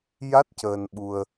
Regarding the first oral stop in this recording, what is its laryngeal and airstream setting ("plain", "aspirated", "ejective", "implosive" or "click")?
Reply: plain